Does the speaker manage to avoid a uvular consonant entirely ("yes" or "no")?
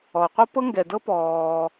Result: no